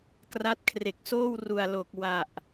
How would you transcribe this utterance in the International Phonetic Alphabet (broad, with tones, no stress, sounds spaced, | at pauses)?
k r a˦˥ t̚ kʰ r e˨˩ k̚ s oː˥˩ w r u˨˩ a̯ l o˨˩ k̚ w a˨˩ ʔ